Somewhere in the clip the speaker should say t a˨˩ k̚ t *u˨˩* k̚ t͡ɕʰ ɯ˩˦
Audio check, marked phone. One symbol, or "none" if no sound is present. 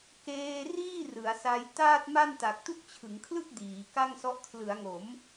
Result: u˥˩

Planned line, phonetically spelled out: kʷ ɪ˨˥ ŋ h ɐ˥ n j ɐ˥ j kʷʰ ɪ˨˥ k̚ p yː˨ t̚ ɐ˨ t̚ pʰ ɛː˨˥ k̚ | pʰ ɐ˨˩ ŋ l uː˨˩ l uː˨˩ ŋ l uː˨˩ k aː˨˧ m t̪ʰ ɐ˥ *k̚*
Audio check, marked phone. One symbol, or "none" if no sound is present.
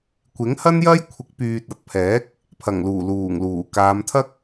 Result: k̚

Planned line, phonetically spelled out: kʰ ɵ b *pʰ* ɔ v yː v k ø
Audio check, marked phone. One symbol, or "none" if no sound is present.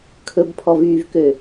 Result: pʰ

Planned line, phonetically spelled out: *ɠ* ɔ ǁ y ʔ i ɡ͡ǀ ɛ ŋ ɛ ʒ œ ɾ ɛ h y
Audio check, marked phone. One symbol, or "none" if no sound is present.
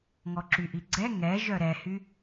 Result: ŋ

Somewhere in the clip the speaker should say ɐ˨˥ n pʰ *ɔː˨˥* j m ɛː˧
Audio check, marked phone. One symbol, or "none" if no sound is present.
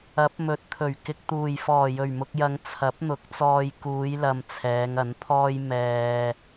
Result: ɔː˥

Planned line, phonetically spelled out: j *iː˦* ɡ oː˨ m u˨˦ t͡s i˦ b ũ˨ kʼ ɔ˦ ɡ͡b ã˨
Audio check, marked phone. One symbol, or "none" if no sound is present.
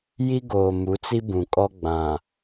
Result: i˦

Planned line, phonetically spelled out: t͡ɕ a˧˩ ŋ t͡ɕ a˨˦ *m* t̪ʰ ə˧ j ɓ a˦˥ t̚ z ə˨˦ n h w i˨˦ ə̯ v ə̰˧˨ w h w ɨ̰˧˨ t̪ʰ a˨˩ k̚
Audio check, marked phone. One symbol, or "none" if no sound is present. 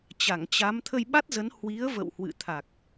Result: m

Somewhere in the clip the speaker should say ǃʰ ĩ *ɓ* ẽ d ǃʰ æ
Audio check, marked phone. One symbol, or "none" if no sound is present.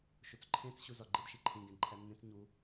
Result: ɡ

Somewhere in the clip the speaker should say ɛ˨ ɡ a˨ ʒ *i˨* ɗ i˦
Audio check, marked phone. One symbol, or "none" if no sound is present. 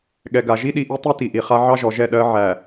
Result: i˦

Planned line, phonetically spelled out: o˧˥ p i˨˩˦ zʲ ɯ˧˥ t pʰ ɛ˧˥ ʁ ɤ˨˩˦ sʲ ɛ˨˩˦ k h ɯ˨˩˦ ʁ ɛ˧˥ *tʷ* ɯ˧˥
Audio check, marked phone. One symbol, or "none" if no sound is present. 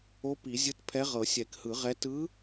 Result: t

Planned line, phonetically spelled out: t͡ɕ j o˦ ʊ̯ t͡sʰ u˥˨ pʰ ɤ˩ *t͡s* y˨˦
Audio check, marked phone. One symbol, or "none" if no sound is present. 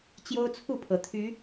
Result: t̪ʰ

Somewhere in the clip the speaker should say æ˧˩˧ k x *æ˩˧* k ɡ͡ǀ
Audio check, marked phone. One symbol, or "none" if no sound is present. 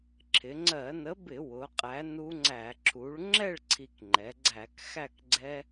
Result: æ˥˨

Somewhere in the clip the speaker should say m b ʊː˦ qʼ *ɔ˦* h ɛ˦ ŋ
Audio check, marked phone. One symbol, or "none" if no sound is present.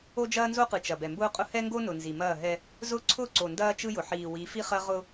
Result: ʊ˦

